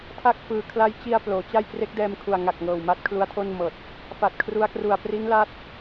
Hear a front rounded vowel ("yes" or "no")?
no